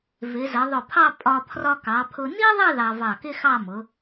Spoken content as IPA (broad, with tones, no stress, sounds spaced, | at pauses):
v ɪ˩˧ z ə˩˧ ðˤ ʊ˧˩ pʰ ɑ˥˧ pʼ ɒ˧ pʰ r ɒ˧ k ɑ˩˧ pʰ ʊ˧ n i˥ ðˤ ɪ˥˧ ð ɑ˧ v ɑ˧˩ k ɪ˥ x ɑ˥˧ m ʊ˩˧